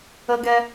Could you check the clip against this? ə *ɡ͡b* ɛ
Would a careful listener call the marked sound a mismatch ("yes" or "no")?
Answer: yes